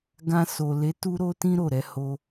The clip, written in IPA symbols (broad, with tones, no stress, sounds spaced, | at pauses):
ɡ ã˧ s o˨ l e˨˦ t u˦ ɾ o˦ t ĩ˦ ɾ o˦˨ ɾ ɛ˨˦ h o˧